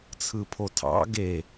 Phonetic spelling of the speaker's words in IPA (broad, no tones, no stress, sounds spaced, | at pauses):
t͡sʰ ɯ pʰ o tʰ ɑ̰ ɡ e